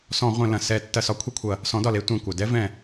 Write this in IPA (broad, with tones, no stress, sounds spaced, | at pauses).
s ɔ̃˧˩˧ ʁʷ ɛ̃˧˩˧ l ɐ̃˩ s ɛ˧˩˧ tː ɐ˧˩˧ s ɒ˨˥ kʷʰ e˦ kʷʰ ɐ˧˩ | s ɔ̃˨˥ d ɒ˩˧˩ l e˦ tʷ ɛ̃˩˧˩ kʷ ɐ˩ d ɛ˦ v ɛ̃˧˩